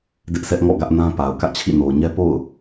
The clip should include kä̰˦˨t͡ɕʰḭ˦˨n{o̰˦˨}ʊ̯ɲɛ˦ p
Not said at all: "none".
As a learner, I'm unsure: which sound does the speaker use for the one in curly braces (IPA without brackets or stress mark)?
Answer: o˨